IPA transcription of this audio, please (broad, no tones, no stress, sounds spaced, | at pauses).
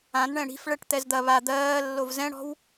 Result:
ã n ɳ ɛ̃ ɽ i̤ f ɭ ɛ ʈ t̪ ɛ z d̪ ɐ β a d̪ ɜː lː o v z ɛ̃ ɽ ɔ̤ w